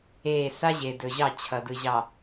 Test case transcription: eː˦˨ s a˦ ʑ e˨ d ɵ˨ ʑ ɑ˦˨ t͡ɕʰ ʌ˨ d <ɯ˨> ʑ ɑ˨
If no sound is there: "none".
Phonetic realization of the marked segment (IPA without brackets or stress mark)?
ɯ˨